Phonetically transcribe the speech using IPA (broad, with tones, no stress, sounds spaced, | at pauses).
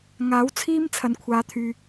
ŋ aː˨˥ w t͡sʰ iː˥ m t͡sʰ ɐ˨ n kʷʰ aː˨˧ t̪ʰ yː˨